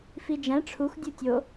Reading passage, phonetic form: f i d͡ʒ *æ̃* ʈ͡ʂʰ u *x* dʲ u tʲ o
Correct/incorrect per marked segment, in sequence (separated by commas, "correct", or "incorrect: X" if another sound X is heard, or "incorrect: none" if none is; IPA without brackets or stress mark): correct, correct